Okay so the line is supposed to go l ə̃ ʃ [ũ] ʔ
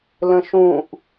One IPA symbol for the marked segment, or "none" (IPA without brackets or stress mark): ũ